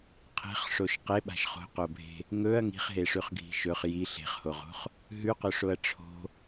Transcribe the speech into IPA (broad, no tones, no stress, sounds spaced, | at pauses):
qʰ e̤ χ ʂ o ʃ q e ɓ a̤ ʃ χ o̤ q o bʱ e̤ | ŋ ɵ ɐ̯ ŋ i̤ χ ɦ e ʂ ʉ χ ɡʱ i̤ ʃ ɵ χ j i ɬ e̤ χ h o ʁ o̤ χ | ɦ ʉ q ɵ ʂ o ɐ̯ ʈ͡ʂʰ o̤